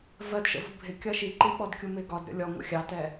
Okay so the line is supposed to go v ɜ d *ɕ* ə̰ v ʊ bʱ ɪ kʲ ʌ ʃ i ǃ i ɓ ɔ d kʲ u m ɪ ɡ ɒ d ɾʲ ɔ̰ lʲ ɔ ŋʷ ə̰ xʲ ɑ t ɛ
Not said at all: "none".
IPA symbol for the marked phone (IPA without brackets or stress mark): ʃ